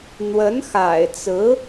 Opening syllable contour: rising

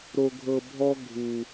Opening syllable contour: low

